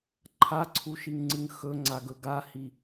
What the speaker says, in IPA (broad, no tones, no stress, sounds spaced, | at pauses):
ǃʰ a ǀʰ u ʃ i ŋ ŋ͡ǀ ɨ ŋ x ɵ ŋ͡ǀ a ɡ ɵ ɡ a h i